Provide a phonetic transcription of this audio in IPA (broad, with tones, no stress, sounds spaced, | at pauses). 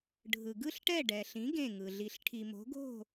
ɖʱ ɯ˩ ɡ ɯ˥˩ ɬ ʈ ɛ˥˩ ɖ ɛ˩ ɬ ĩ˩˥ ɡ ẽ˥˩ ŋ ɯ˩ ɮ i˩ ɬ ʈʰ i˩ m o̤˩˥ ɡ o̤˥˩